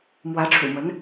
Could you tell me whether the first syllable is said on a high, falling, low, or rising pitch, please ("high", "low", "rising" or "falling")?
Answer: rising